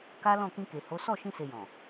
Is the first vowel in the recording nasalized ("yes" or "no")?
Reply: no